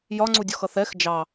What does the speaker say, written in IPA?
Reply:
j ɒ ŋ͡ǀ u dʲ ɒ x ʌ θ ɛ x d͡ʒ ɑ

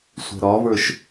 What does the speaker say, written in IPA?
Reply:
sʷ ɛ̤ ɾ ɒ v ə˞ ʃ

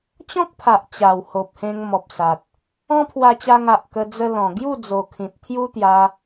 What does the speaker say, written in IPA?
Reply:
t͡ɕ ɔ̃˦ k̚ pʰ a˨ ʔ t͡ɕ a˨˩ w h o˨ p̚ h ẽ˧ ŋ m ɔ˨ p̚ s a˨ t̚ | ɔ̃˦ pʰ w a˧ t͡ɕ a˧ ŋ a˨ ʔ k ə˧ d͡z ə˧ l ɔ̃˨˩ ɡ j u˥˧ d͡z o˨˩ kʰ ĩ˨ t̚ t̪ʰ j u˦ t̪ j a˧

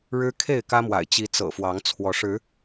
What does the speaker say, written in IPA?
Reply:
ɻ ɻ̩˦ kʰ e˥˨ ɪ̯ k ä˦ m w a̰˨˩ ɪ̯ t͡ɕ i˨˦ t͡s ɤ̰˨˩ f w ɑ˨˦ ŋ t͡sʰ w ɔ˨˦ ʂ ɻ̩˨˦

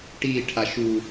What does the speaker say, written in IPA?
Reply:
ʈ i ʈʰ a ʃ u

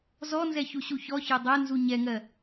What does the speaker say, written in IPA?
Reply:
z ɔ n z ɛ ç u ɕ u ç ɔ ç ɜ dˤ ɜ n z u ɲ ɛ ŋ ɜ

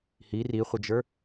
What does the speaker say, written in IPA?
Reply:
h i r i χʷ ə d͡ʒ ə˞

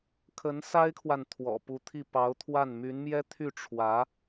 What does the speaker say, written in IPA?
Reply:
kʰ ə˧˥ n s a˥ ɪ̯ kʰ w a˨ n t̪ʰ w ɔ̰˨˩ p u˧˥ t̪ʰ i˥˩ p ɑ˧˥ ʊ̯ t̪ʰ w a˥˩ n m y˧˥ n m j ɛ˥ t̪ʰ y˥˩ ʈ͡ʂʰ w ä˧˥

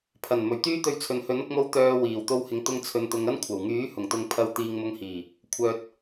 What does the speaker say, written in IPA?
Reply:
pʰ ɐ˨˩ n m ɵ˨˩ ɥ t̪ yː˥ t̪ ɵ˧ ɥ t͡sʰ ɵ˨ n h ɵ˨˥ n ʊ˧ k̚ m o˧ w t̪ œː˧ w iː˨˩ w t̪ o˧ w h ɪ˨˧ ŋ t̪ ʊ˧ ŋ t͡sʰ ɵ˨ n t̪ ʊ˨˧ ŋ ɐ˥ n kʷʰ ɐ˨˩ w ŋ yː˨˥ h ʊ˨˩ ŋ t̪ ʊ˨ ŋ pʰ ɐ˨˧ w t̪ iː˨ ŋ m ʊ˨˧ ŋ h iː˨˩ | kʷʰ œː˨ t̚

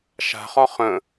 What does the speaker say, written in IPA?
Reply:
ʃ a̤ χ ɒ χ ə̃

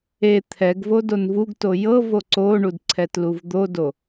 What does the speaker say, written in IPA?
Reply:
e t̪ʰ ɛ ɡ v o d o n v u ɡ t o j ɤ v o ǀ o ɳ u d ǀʰ ɛ t l u v d̪ o d o

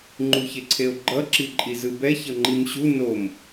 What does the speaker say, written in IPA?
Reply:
ŋ͡ǃ u ç e ǀʰ e o̯ ɡ͡ǃ ʌ ǁ i ǃʼ i z ɯ b ɛ ç ʌ ŋ͡ǃ i m ɕ u n o m

